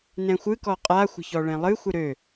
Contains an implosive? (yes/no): no